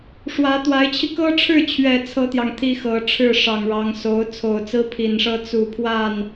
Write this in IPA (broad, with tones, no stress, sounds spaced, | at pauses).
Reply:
ʂ w ä˧˥ t̪ w a˧˥ ɪ̯ t͡ɕʰ i˧ k ɤ˥ ʈ͡ʂʰ ɻ̩˥˩ t͡ɕʰ ɥ ɛ˨˩ t͡sʰ ɤ˥ t̪ j ɑ˨ ŋ t̪ʰ i˥ x ɤ˧˥ ʈ͡ʂʰ ɻ̩˥˩ ʂ ɑ˨˩ ŋ ɻ ɑ˧˥ ŋ s o˧˥ ʊ̯ t͡sʰ o˨˩ ʊ̯ t͡s ɹ̩˥ pʰ i˨˩ n ʂ ɤ˥ t͡s u˨˩ pʰ w a˥˩ n